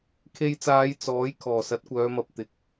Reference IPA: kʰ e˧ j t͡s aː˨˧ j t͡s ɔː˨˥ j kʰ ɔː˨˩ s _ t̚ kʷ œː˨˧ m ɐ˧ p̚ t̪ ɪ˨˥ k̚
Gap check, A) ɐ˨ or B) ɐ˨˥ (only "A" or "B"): B